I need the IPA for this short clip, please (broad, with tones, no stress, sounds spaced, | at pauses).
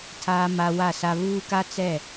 tʰ aː˨ m a˨ w a˦˨ s a˦ β uː˦ k a˦ t͡s ɛ˦˨